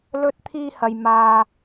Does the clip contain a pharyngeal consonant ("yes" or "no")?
no